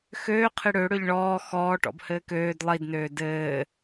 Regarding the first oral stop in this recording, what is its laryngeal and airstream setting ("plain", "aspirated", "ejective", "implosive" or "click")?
aspirated